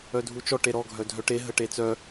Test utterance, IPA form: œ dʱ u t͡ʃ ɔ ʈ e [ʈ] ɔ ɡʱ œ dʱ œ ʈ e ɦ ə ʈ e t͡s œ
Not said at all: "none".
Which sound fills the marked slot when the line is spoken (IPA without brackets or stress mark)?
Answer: ɾ